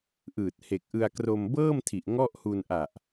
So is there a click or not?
no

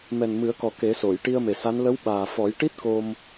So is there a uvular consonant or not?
no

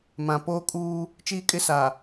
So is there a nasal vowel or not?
yes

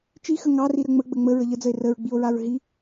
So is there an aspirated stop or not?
no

